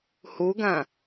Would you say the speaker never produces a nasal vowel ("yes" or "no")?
no